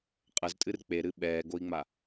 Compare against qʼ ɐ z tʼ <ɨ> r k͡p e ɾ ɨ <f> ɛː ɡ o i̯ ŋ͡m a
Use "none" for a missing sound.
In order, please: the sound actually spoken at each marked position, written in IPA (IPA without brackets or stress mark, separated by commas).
ɨ, ɓ